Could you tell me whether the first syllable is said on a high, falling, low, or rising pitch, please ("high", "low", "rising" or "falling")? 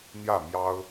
falling